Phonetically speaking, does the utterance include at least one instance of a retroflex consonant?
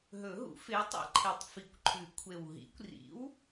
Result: no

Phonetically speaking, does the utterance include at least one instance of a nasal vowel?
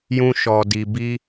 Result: yes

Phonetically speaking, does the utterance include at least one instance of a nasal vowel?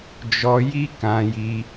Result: yes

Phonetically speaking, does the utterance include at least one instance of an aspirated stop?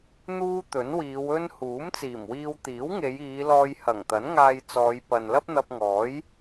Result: no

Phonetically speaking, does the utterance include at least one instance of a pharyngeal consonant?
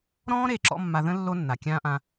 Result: no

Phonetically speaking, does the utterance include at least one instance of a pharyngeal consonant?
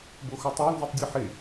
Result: yes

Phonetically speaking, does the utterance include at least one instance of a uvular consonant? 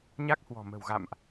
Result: no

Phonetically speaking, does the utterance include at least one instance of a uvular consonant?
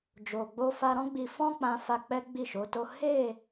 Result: no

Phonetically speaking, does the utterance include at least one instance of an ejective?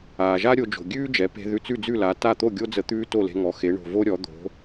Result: no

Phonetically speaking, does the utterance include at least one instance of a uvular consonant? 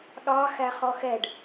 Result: yes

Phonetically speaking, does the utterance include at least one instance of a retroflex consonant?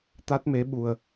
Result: no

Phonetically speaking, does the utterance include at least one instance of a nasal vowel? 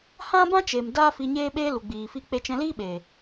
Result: yes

